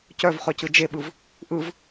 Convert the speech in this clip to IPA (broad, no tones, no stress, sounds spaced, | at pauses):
c œ v χ œ c ɯ d͡ʒ e ɓ ɯ v | ʔ ɯ v